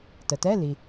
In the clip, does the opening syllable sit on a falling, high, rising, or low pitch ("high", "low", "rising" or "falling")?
low